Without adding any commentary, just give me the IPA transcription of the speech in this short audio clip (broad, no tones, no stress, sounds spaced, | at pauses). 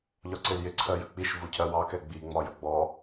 ʎ ɒ ǀ ɪ l j ɪ ǀʰ ɜ j ə k͡p i ʃ v u cʰ ɜ w ɑ k ɛ ɡ͡b i ŋ͡m ɒ j ʌ ɡ͡b ɔ